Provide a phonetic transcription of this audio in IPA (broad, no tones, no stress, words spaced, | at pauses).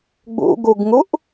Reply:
ɡ͡bṵɡuɡŋuʔ